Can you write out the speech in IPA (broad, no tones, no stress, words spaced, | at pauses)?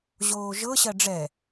ʑoːʒɤ ɕɜɖ͡ʐɛ